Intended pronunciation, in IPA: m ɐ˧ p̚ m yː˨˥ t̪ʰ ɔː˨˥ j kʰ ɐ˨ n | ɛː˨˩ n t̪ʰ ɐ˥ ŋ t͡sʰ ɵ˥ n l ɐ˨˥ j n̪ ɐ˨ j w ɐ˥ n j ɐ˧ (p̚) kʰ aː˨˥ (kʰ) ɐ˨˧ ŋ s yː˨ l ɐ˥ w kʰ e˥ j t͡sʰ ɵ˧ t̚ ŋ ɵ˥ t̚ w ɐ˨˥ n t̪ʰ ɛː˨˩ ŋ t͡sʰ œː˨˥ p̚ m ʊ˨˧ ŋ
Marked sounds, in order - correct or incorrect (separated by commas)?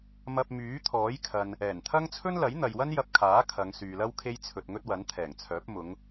correct, correct